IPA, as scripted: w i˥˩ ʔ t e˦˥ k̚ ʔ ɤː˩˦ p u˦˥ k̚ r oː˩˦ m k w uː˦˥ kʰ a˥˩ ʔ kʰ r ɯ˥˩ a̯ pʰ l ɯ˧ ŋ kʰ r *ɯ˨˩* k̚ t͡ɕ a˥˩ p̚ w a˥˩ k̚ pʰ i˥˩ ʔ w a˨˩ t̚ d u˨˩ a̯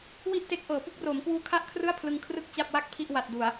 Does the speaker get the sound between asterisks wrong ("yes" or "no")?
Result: yes